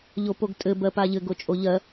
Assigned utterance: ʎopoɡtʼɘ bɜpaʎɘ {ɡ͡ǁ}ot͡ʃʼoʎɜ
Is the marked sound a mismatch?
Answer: yes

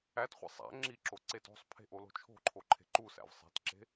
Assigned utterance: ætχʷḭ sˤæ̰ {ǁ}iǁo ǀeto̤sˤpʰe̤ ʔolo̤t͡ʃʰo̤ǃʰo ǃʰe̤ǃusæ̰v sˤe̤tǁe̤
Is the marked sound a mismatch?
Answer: yes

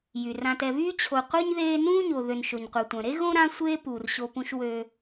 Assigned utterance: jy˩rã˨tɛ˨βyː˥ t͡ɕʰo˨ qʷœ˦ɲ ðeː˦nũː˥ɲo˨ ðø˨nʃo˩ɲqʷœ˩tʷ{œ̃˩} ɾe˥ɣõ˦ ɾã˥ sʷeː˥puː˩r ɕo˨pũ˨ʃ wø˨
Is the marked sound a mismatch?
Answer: no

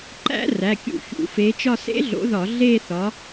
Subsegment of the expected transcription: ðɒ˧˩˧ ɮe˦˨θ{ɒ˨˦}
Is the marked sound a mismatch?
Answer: no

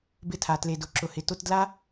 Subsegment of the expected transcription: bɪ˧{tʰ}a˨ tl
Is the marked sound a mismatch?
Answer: no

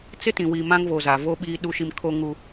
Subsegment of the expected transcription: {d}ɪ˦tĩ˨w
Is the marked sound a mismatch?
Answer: yes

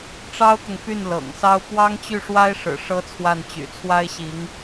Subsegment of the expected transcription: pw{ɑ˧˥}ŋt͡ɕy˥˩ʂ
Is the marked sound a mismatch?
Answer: yes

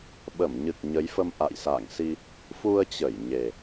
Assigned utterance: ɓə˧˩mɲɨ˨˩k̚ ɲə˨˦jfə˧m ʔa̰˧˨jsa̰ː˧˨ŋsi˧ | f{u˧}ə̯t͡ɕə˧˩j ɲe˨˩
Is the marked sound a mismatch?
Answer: no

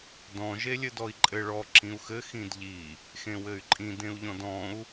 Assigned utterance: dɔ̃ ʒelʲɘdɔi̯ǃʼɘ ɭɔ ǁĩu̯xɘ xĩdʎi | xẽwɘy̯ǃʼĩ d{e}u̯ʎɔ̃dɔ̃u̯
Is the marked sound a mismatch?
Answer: yes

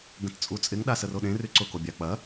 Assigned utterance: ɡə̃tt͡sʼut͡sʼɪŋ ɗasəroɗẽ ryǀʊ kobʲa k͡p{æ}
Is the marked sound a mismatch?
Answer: yes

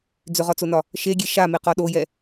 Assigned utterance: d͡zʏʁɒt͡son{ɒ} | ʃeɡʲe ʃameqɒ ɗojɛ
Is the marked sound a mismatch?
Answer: no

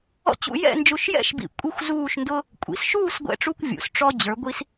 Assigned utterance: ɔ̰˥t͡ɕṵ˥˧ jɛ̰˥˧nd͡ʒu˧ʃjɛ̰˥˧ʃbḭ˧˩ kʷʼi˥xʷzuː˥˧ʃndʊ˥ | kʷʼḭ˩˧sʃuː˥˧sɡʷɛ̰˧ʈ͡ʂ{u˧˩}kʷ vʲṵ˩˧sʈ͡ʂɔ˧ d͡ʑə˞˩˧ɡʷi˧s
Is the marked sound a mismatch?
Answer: yes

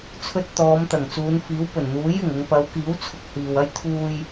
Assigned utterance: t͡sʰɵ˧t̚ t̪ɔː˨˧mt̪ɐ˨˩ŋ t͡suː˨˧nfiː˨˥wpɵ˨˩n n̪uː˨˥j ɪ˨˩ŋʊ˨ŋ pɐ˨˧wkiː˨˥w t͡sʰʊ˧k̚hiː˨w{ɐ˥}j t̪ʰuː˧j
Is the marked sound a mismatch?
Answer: no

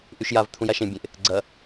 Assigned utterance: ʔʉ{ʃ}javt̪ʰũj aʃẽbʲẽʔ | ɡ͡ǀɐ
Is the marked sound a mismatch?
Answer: no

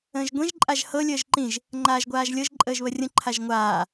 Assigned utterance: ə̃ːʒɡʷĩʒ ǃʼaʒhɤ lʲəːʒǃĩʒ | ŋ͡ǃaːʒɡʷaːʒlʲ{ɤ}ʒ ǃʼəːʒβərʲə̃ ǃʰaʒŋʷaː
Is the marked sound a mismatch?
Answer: no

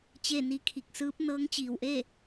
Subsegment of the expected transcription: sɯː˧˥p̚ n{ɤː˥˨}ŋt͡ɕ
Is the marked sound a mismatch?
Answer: yes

